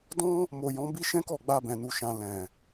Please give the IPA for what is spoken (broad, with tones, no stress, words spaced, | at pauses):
dɔ̃˦ | mo˨ jɔ̃˨˦bi˦ʃɛ̃˦kɔ˦˨ ɡ͡ba˧bɛ̃˨nu˨ʃã˨ lɛ̃˨